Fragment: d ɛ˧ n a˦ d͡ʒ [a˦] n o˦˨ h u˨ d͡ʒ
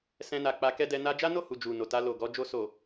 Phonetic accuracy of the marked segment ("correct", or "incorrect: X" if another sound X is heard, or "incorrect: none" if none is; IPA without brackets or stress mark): correct